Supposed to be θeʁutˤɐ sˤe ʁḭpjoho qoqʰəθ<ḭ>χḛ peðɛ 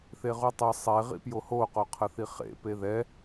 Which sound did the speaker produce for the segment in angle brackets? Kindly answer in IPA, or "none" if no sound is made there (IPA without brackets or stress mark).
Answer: i